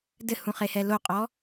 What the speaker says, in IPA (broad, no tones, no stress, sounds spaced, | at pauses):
d ɘ h ũ χ e h ɛ l o qʼ ɔ